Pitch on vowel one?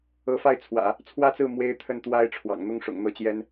rising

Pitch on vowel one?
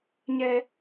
high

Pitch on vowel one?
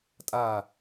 falling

